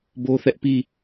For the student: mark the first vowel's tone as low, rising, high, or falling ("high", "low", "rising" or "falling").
high